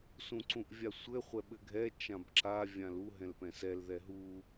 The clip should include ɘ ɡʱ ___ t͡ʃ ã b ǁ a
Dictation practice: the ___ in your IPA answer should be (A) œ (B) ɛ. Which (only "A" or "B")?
B